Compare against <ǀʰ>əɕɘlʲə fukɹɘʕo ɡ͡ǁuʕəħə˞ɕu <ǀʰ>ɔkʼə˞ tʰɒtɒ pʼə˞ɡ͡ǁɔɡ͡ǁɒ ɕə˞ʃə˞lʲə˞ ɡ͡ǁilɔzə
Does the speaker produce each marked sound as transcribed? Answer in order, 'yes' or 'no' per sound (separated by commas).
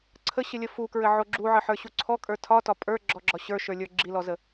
yes, yes